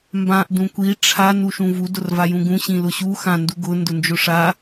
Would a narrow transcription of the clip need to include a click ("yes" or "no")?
no